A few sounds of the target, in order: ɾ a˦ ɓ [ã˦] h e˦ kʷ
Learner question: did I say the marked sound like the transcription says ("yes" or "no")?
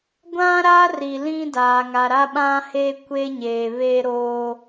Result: yes